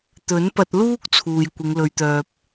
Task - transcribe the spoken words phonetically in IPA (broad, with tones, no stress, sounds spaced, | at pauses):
t̪ ɵ˨˥ n p ɐ˧ t̚ l uː˥ k̚ t͡sʰ uː˨ j kʷ ɪ˨˧ ŋ l ɵ˨˧ ɥ t̪ œː˨ p̚